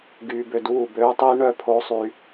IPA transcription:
ɡyː˧bø˧duː˦˨bøː˦ tˤiː˦ɳœ˦˨pʰoː˦ sˤy˦

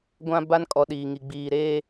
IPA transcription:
ɡʷã˦ ba˦n kʼɔ˨ ɗiː˨ŋi˨ ɡ͡biː˨ɾeː˦

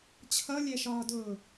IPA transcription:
t͡ɕʰʌlʲɛʃɒːdʊː

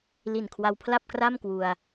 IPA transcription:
li˨˩nkʰwa˧wpʰla˥˩p̚kra˥˩m kwu˧a̯

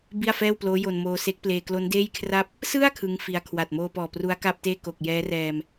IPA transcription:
bi˥˩a̯fɛː˥˩wploː˦˥jo˧n moː˧se˦˥k̚pleː˧ klo˦˥ndeː˥˩jkʰra˥˩p̚ | sɯ˥˩a̯ kʰɯ˦˥ŋfi˧a̯ kʰwa˨˩t̚moː˧pɔː˨˩ pru˦˥a̯ka˥˩p̚teː˥˩ko˨˩k̚ jɛː˦˥ rɛː˧m

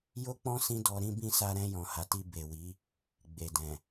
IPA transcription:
jo˦k͡pɔ̃˦ sĩ˧ dɔ˧ ɾĩ˧bĩ˧ sa˧ɾɛ̃˧jɔ̃˨ ha˨ti˧ be˨wi˨˦ | ɡ͡be˨dɛ̃˨

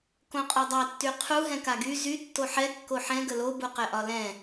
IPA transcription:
kõqʼɒdˤa tːyqʰu ɦɛ̃kaɡy zy tːoħɛ kːoħɛ̃ ɡəlo buqɛʔɒlɛ̃

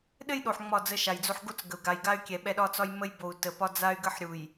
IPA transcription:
ɗɘ˦jɗo˨ħ ŋ͡mɒ˦˨d͡zə˦ʃa˨jd͡zo˦ħ ɡo˦t͡sɡə˨u̯ ɡa˨jɡa˦y̯kʲɛ˨ ɓɛ˦ɗɒ˦t͡sɒ˦j mə˦jbo˨u̯ tə˨pɒ˦d͡za˦y̯ɡə˦ħ ɾʲu˨j

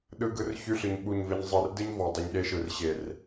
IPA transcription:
ɗɯ˦ɡɯ˦rçy˦ ɬɯ˨ɲɓu˦˨ɲve˦ɲ zˤɯ˨rdɯ˦ɲ vɔ˨dˤi˨ɲɗe˦ʃɯ˨r ɕe˨r

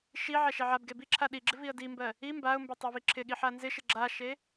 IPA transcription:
ʃi ʕɛʃɛʕabɡe biǁʰa ɗiɡ͡ǁɪ viə̯dimbɜ | i mbaʊ̯mbe tˤɛviǁʰɪɠi ħanzɪʃɪ ɡ͡ǁaʃe

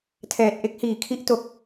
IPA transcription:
tʰɛː˨˩t̚ʔe˦˥k̚hiː˨˩ kʰi˥˩ʔto˦˥k̚

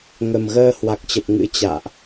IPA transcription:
ŋə˨˩mɣəː˧ hwa˨˩k̚t͡ɕə˨˩p̚ ŋɨ̰˧˥ t͡ɕa̰ː˧˨ʔ

